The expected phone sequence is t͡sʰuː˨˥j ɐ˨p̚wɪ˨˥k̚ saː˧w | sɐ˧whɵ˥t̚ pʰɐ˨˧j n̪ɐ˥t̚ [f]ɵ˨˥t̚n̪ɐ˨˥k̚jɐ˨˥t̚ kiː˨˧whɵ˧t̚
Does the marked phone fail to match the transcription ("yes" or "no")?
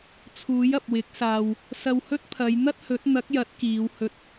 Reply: yes